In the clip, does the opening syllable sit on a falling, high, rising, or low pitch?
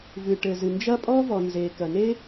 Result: low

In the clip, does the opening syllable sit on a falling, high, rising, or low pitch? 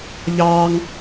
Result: high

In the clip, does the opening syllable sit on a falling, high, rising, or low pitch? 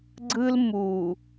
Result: high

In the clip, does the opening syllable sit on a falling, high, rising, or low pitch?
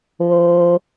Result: low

